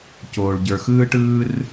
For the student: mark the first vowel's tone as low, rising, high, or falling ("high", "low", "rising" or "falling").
low